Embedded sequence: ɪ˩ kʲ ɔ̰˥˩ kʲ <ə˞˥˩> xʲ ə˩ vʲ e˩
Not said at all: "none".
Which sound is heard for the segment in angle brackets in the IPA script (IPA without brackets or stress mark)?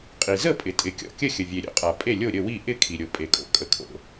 ə˥˩